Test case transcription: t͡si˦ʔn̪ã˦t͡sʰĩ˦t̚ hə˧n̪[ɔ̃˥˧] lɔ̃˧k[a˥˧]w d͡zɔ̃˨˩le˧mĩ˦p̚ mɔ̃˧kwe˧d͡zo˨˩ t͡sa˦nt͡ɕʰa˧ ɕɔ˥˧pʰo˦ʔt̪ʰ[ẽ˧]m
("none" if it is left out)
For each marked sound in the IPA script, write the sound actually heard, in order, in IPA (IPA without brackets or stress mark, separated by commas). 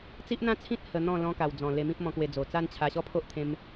ɔ̃˥˧, a˨˩, ẽ˧